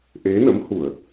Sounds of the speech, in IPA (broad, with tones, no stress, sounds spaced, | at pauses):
ʔ e˨˦ n ə̰˧˥ m h u˧˩˨ ə̯